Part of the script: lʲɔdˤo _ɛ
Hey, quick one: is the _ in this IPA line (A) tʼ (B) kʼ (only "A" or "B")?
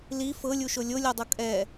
B